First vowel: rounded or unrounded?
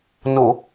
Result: rounded